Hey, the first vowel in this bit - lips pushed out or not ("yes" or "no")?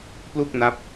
yes